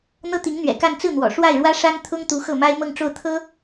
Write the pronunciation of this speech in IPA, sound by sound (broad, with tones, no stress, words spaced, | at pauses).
n̪ɤ˥t̪i˧˥ŋn̪ɥɛ̰˨˩ka˥˧n t͡sɹ̩˥˩n̪wɔ̰˨˩ ʂwa˥˩ɪ̯ɻwä˥ ʂa˥nt̪ʰʊ˥ŋt̪u˧˥xɤ˥˩ ma˥ɪ̯mɤ˥˧ŋʈ͡ʂo˥˩ʊ̯t̪ʰɤ˥